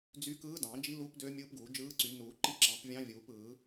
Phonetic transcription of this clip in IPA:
d͡z y˧˥ k ɯː˧˥ d ɑ̃˨˩˦ d͡ʒ i˧˥ l u˧˥ p d ø˧˥ mʲ ɯː˧˥ p ɡ uː˨˩˦ d͡ʒ ɯː˧˥ ǀ y˨˩˦ n uː˨˩˦ ǃ i˧˥ ǁ ɑ̃˨˩˦ p vʲ ɑ̃˧˥ vʲ uː˨˩˦ p ɯː˨˩˦

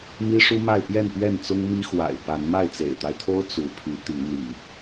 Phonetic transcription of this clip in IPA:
m i˦ ʂ u˦ m a˥˨ ɪ̯ p j ɛ˥˨ n p ɥ ɛ˥˨ n t͡s ʊ˦ ŋ m i˦ x w a̰˨˩ ɪ̯ p a˨˦ n m a˥˨ ɪ̯ t͡s ḛ˨˩ ɪ̯ t̪ a˦ ɪ̯ t̪ʰ o˦ ʊ̯ t͡s u˨˦ pʰ y˨˦ t̪ i˨˦ n̪ ḭ˨˩

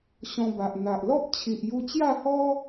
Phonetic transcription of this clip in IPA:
ɕ ɔ̃˧ b a˨ ʔ n̪ a˨ ʔ l ɔ˦ p̚ t͡ɕʰ i˨ ʔ j u˧ t͡ɕ j a˥˧ h ɔ˦

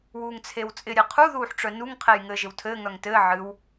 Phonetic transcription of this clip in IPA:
w uː ŋ t͡sʰ e w t͡sʼ ɪ ɾʲ e qʰ u ð uː ħ ʈ͡ʂ œ n u ŋ qʰ e j ŋ ɘː ʒ ɪ w tʰ ɘː ŋ œ ŋ t ɘː ʕ ɨ w

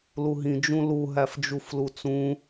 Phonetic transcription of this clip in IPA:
l u ɦ ĩ d͡ʒ ũ l u ɦ æ f d͡ʒ u f l u t͡s ũ

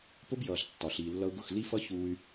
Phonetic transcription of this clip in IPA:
p ʊ˦ b j ʌː˨ ɬ tː ɒ˨ ɬ iː˨ lː ʌ˧ u̯ ɡ ʊ˦˨ x l i˦ f ʌ˦ ç uː˧ y̯

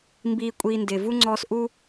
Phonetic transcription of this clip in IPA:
m b iː˧ kʷʼ iː˧ n d ɪː˨ v u˦ ŋ͡ǀ ɔː˧ s ʔ u˦

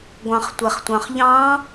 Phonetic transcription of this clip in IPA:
ɡʷ ɑ̃ χ tʷ ɛ χ tʷ ɑ̃ χ ʎ ɑ̃

